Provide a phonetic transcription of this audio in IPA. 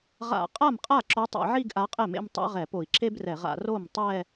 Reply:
ʁ a̰˧˩˧ qʼ a˥˩ m qʼ a˥˩ ǁ o˧˥ tˤ ḛ˧˩˧ ʕ i˥˧ ɡ ʔ a˧˥ qʼ ɛ˥˩ m ḛ˥˧ m tˤ a̰˥ ʁ ɛ˧˩˧ p o˧˩˧ i̯ ǁ e˥ b r ɛ˧˩˧ ʁ a̰˧˩˧ r o˥˩ m tˤ ɛ˥˧

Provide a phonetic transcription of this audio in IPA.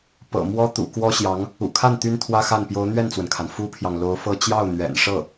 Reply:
p ɤ̰˨˩ m w ɔ˥ t̪ ṵ˨˩ k w ɔ˥ ɕ j ɑ˧˥ ŋ | ṵ˨˩ kʰ a˥˩ n t̪ y˥ n t̪ʰ w ä˥ x a˥˩ n p j o˧˥ ʊ̯ n̪ ɥ ɛ˥˩ n t͡s w ə˩ n kʰ a˩ n f u˥ pʰ j ɑ˨ ŋ l o˧˥ ʊ̯ f ɤ˥˧ t͡ɕ j ɑ˥˩ ʊ̯ n̪ ɥ ɛ̰˨˩ n ʂ ɤ˥˩

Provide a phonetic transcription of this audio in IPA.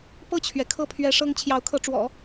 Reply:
p ɤ˥˩ t͡ɕʰ ɥ ɛ˩ kʰ ɤ˥˩ pʰ ɥ ɛ˧˥ ʂ ɤ˥ ŋ t͡ɕʰ j ɑ˧˥ ʊ̯ kʰ ɤ˧˥ ʈ͡ʂ w ɔ̰˨˩˦

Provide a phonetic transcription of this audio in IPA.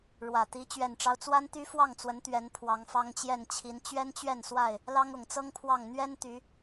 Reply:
ɻ w ä˨˩ t̪ i˨˦ t͡ɕ ɥ ɛ˨˩ n ʈ͡ʂ ɑ˦ ʊ̯ t͡s w a˦ n t̪ y˦ f w ɑ˥˨ ŋ t͡s w ə˨˦ n t̪ ɥ ɛ˨˦ n pʰ w ɑ˨˦ ŋ f ɑ˦ ŋ t͡ɕ j ɛ˥˨ n t͡ɕʰ i˨˦ n t͡ɕ ɥ ɛ˦ n t͡ɕ ɥ ɛ˥˨ n s w a˥˨ ɪ̯ | l ɑ˦ ŋ ʊ˨˩ ŋ t͡s ɤ˦ ŋ pʰ w ɑ˥˨ ŋ n̪ ɥ ɛ˦ n t̪ y˨˦

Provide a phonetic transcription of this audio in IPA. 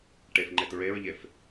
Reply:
ʈ e f ŋ͡ǃ e t ɹ e ɹ ʎ e f

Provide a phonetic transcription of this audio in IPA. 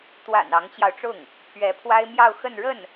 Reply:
t̪ w a̰˨˩ n ɑ˧˥ ŋ t͡ɕ j ɑ˧ ʊ̯ ʈ͡ʂ ʊ˥˩ ŋ | pʰ ɥ ɛ˧˥ pʰ w a˥ ɪ̯ m j ɑ˥˧ ʊ̯ x ə˥˧ n ɻ ə˥˩ n

